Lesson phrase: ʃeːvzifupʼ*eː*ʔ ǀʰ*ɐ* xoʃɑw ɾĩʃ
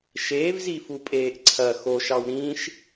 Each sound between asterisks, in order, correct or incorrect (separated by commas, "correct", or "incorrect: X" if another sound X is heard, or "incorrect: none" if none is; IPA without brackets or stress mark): correct, correct